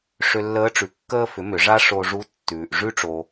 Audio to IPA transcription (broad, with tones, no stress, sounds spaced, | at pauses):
ʂ ʏ˧ lː əː˧˥ ʈ͡ʂ ʉ˩˧ kː əː˧ f ʏ˩˧ m ʏ˩˧ ʐ a˥ ʂ o˧ ʐ u˧˥ tː ʉː˩ ʔ ʐ ʉ˧ ʈ͡ʂ o˩